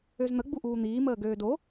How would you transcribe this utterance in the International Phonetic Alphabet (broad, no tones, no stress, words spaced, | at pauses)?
øzn̪ə ɡ͡buʔuːn̪iː məːɡøːdo